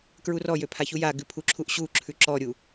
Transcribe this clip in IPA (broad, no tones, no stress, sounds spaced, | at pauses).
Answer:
k ɹ u r ɔ j ø pʰ a ç u j a ɡ ʉ pʰ u ǁʰ u ʔ ɕ u ǁʰ ʉ ǁ ɔ ɾʲ u